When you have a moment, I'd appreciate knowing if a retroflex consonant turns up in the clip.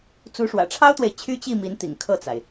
yes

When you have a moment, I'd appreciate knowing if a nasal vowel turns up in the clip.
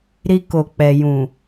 yes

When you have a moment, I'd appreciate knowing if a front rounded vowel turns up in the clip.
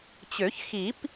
yes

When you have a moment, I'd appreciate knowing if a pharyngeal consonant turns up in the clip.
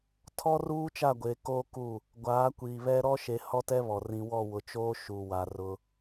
no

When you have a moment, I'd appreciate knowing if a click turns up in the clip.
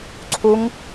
yes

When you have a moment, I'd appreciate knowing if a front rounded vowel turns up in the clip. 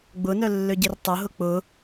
yes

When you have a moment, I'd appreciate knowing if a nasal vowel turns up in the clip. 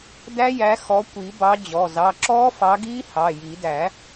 no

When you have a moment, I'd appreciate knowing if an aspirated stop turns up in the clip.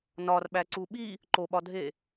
no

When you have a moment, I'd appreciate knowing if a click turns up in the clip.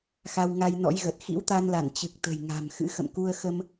no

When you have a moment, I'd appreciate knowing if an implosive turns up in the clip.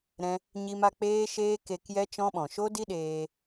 yes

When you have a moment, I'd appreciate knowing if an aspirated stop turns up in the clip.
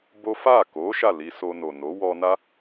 no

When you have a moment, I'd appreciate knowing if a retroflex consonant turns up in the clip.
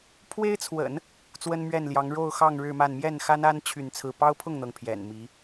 yes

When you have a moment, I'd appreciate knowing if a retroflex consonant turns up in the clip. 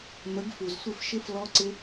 no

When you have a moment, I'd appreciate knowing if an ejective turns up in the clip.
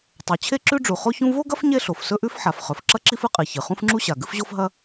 yes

